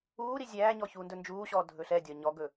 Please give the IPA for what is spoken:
uː ɾ i zʲ æː ɲ ɔ ç uː n d ɵ n d͡ʒ uː ɕ ɔː dʱ ɵ ɬ ɛ dʲ ɒ ɲ ɔ ɡ ɵ

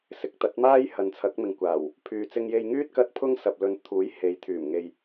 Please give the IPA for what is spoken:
s ɪ˨˥ k̚ t̪ ɐ˨˥ t̚ m aː˥ j h ɐ˨ n t͡sʰ ɐ˨˥ k̚ m ɪ˨ ŋ kʷ aː˨˩ w | pʰ yː˨ t͡s ɪ˧ ŋ j e˧ j ŋ yː˥ t̚ k ɐ˧ t̚ pʰ ʊ˥ ŋ s ɐ˨ p̚ l ɵ˨˧ n t̪ʰ uː˨˥ j h e˨ j t̪ʰ yː˨˩ m ŋ e˨ j

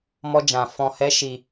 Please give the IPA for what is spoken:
m ɔ˦ d͡ʒ ã˧ f ɔ̃˧ h ɛ˦ ʃ i˧

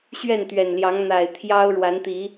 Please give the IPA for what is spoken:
ɕ ɥ ɛ˥˨ n t̪ ɥ ɛ˨˩ n l j ɑ˨˦ ŋ n̪ a˨˩ ɪ̯ t̪ʰ j ɑ˦ ʊ̯ ɻ w a˨˦ n t̪ i˨˦

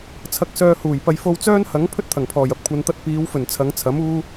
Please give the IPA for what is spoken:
t͡sʰ ɐ˧ k̚ s œː˧ h uː˨˩ j p ɐ˧ j f o˧ w t͡s œː˥ n h ɐ˨˥ ŋ pʰ ɵ˥ t̚ t̪ʰ ɐ˨˩ ŋ pʰ ɔː˨˩ j ɐ˥ p̚ kʷʰ ɐ˨˧ n t̪ ɐ˧ t̚ p iː˨˧ w f ɵ˨˩ n t͡sʰ ɐ˨˧ ŋ t͡sʰ ɐ˨˥ m uː˥

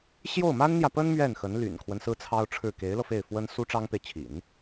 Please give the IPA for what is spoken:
ɕ j o˥˩ ʊ̯ m a˥ n n̪ j ä˨ p ə˥ n m ɥ ɛ˥˩ n x ə˧˥ n l y̰˨˩ n kʰ w ə˦ n s ɹ̩˥ t͡sʰ ɑ˥ ʊ̯ ʈ͡ʂʰ ɻ̩˥˩ k e˧˥ ɪ̯ l ɤ˧ f e˥˩ ɪ̯ f w ə˥ n s u˥ ʈ͡ʂ ɑ˥ ŋ p e˨ ɪ̯ t͡ɕʰ ḭ˨˩˦ n

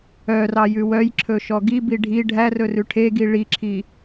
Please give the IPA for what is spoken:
œ r ɑ j ʉ w œ j ǁʰ ɵ ʃ ɔ ɡ i b i ɖʱ i ɖʱ æ r ɵ r ʉ ʈʰ e ɡ i ɭ i ǁʰ i

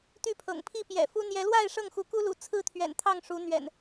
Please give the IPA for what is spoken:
t̪ y˥˨ pʰ ɤ̰˨˩ ŋ pʰ i˥˨ p j ɛ̰˨˩ f u˦ n̪ j ɛ˨˦ l w a˥˨ ɪ̯ ʂ ɤ˥˨ ŋ x u˨˦ k u˦ l ṵ˨˩ t͡sʰ ɹ̩˥˨ t̪ʰ ɥ ɛ̰˨˩ n t̪ʰ ɑ˥˨ ŋ ʂ u˨˦ n̪ ɥ ɛ̰˨˩ n

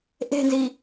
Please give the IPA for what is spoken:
ʔ e̤ n z i

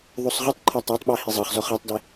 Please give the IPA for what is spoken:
ðˤ o sˤ ʁ ɯ tˤ ǃʰ a tˤ a tˤ ɓ a h i zˤ ɤ χ z ɔ χ a tˤ d ɛ

